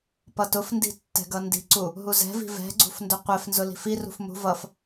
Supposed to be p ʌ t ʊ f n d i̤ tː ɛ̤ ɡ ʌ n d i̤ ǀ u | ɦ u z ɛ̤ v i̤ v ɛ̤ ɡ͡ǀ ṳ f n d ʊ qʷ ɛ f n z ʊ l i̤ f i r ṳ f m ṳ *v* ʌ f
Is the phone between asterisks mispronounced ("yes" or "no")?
no